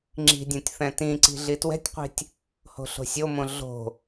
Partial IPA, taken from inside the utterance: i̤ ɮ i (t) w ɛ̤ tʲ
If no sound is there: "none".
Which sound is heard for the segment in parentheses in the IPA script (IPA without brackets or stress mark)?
t